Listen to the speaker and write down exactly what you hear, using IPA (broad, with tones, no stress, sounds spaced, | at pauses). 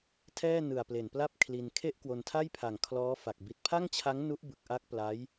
tʰ ɛː˥˩ n ɯ˨˩ a̯ p l e˨˩ n p l a˥˩ p̚ kʰ l i˧ n kʰ e˥˩ ʔ k w o˧ n tʰ a˥˩ j pʰ a˨˩ ŋ kʰ l ɔː˦˥ f a˨˩ k̚ b i˨˩ t̚ pʰ a˥˩ ŋ t͡ɕʰ a˦˥ ŋ n u˦˥ ʔ b ɯ˨˩ k̚ ʔ a˦˥ k̚ p l a˦˥ j